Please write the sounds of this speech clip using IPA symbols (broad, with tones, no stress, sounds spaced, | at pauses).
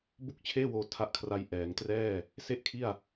b u˥˩ k̚ t͡ɕʰ eː˥˩ w oː˧ tʰ a˦˥ ʔ kʰ r a˧ j ʔ ɛː˩˦ ŋ t r ɛː˥˩ | s e˥˩ ʔ kʰ i˥˩ a̯